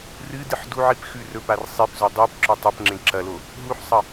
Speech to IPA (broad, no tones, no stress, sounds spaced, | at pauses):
r ɨ d ɨ ħ d u ʕ i p x ʉ r ɵ p a r sˤ i p z o dˤ e p ǁ ɵ tˤ ɵ p ŋ͡ǁ ẽ ǁ ɐ l o | ɦ u ħ sˤ ɐ